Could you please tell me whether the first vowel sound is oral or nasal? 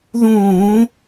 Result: nasal